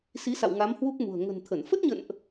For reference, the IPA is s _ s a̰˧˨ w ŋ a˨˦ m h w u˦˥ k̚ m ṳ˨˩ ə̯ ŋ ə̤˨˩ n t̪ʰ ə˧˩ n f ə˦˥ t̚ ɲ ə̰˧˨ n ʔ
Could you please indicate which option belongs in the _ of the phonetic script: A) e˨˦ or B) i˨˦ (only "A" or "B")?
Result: B